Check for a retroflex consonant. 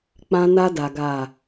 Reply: absent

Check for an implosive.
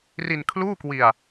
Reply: absent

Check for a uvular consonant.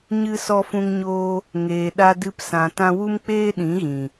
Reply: absent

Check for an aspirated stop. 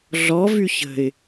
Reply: absent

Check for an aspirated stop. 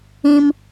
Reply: absent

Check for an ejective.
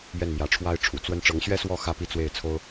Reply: absent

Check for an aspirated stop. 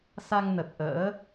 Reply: absent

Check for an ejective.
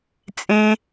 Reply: present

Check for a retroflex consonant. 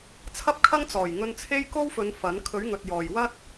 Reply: absent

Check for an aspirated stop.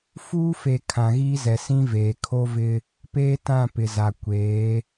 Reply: present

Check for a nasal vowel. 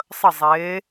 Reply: absent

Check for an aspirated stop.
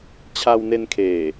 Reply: present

